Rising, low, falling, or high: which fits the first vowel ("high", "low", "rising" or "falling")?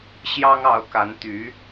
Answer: high